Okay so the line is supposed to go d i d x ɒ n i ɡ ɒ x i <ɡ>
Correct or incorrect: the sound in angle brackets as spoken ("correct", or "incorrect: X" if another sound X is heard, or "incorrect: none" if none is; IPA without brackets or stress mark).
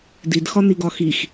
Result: incorrect: x